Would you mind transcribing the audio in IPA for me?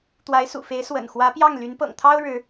t̪ w a˧˥ ɪ̯ s ṵ˨˩ f e˧˥ ɪ̯ s w ə̰˨˩ n x w ä˧˥ p j ɑ˥˩ ŋ l y˧˥ n p ɤ̰˨˩ ŋ t̪ʰ ɑ˥ ʊ̯ ɻ ɻ̩˧˥

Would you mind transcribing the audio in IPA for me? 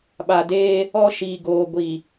ɓ a˨ d eː˦ | ɔ˦ ʃ iː˨ ɡ oː˨ ɡʷ i˨

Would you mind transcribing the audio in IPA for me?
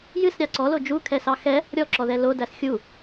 j ɨ s ɾʲ ɑ ǀ ɔ l o d͡ʒ u kʰ ɛ s ɑ x ɛ | ɾʲ ɔ ǁ ɔ ð ɛ l o d æ s xʲ u

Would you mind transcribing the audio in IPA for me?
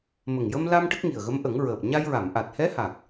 m ə˨˩ ŋ j ə˧ m l a˧ m ʈ ə˦˥ k̚ ŋ i˨˩ ə̯ ɣ ə˧˥ m ʔ ə˨˩˦ ŋ ɹ əː˨˩ p̚ ɲ a˧ j ɹ a˨˩˨ m ʔ a˨˩ t̚ h ɛ˧˥ h a˨˩ k̚

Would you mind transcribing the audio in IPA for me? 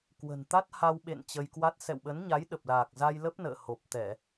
k w ə̤˨˩ n t̪ a˦˥ t̚ h a˧ w ɓ ḛ˧˨ n t͡ɕ ə˧ j k w a˦˥ t̚ s ɛ̰˧˨ w ɓ ə˨˦ n ɲ a˨˦ j ɗ ə˨˩ p̚ l aː˨˩ k̚ z a˧ j l ə˦˥ p̚ n ə̰ː˧˨ h o˨˩ p̚ t̪ ɛ˧˩˨

